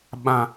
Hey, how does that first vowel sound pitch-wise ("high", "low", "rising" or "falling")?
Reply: low